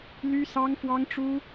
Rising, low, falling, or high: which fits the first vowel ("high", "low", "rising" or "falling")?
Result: high